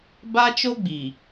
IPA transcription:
ba˦t͡ʃo˦ɡ͡bi˨

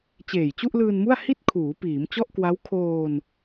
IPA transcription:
t͡ɕeː˨˩j t͡ɕu˥˩ʔlɯː˧nmu˥˩a̯ hi˥˩t̚kʰuː˩˦ piː˩˦m t͡ɕɔ˥˩ʔkwa˦˥w kʰoː˧n

